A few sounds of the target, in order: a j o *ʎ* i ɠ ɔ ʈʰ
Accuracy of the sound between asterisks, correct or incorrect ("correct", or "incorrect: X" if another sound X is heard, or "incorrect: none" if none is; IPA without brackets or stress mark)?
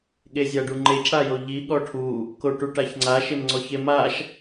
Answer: correct